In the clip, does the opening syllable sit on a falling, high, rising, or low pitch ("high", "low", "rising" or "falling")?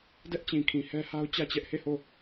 high